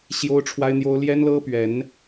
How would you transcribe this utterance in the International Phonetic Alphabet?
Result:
ɕ j o˦ ʊ̯ ʈ͡ʂʰ w a˦ ɪ̯ n̪ j o˦ ʊ̯ l j ɛ˦ n l ɤ˦ p ɥ ɛ˨˦ n

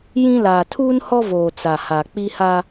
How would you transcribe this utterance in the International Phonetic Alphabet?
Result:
j ĩ˦ l aː˨ tʰ uː˦ n h ɔ˦ v oː˨ t͡s a˨ h a˨ k͡p i˦ h a˦

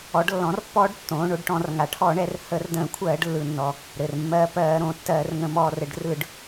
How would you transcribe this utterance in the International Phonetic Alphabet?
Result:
ɔ˩˧ ɖ lː ɔ̃˩˧ r pː ɔː˧ ɖ tː õː˩˧ ɳ o˧ ɖ ʈ ɔ̃˧˩˧ r ŋ a˩˧ ʈʰ ɔ˧˩˧ ɳ ɛ˩˧ r h ə˧˩˧ r d ə̃ː˧˩˧ kʷʰ ɜː˧˩˧ ɖ lː ɯ˩ nː ɔ˩ | ɾ ɘ˩ r mː ɜː˧ p ɜː˧˩˧ ɾ õː˩ tː ɜː˧˩˧ r ŋ ə̃˧˩˧ m ɔː˧˩˧ r ɘ˩˧ ɖ r ɯ˧˩˧ ɖ

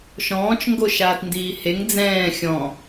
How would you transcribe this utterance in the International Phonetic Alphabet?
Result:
ʃ ɔ̃ː t͡ʃ ŋ ɡ o ʃ aː t n d iː h e ŋ d͡z ɛ̃ː xʲ ɔ̃

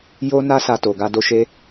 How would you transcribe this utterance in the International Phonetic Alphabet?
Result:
j o˦ n a˦ s a˧ t o˨ ɡ a˧ d o˧ ʃ e˦

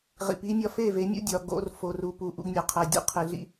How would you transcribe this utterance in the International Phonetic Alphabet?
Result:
ʁ ḭ˨ p i˦ mʲ ɒ˦ f e˦˨ v e˨˦ mʲ ṵ˦ dʲ ɒ˨ ɡ o̰˨ r f o˨ r u˨ p u˨ ʔ ṵ˦ ɡ nʲ ɒ˨ qʰ æ˨ dʲ ṵ˦ qʰ e˨ ɮ ḭ˦

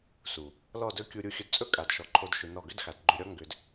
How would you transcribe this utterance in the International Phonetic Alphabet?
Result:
s u˨ | l ɔ˦˨ d ɵ˦ kʲ u˧ ɾʲ u˧ xʲ ə˧ d t͡sʼ ɵ˦ kʼ a˨ d ʃ ɔ˨ ǃʰ o˧ d ʃ ʏ˧ n ɔ˦˨ ɡ ʏ˦ d x a˨ d ɡ͡ǃ ʏ˧ ɾʲ ɔ˦ ŋ ɡ ʏ˧ d

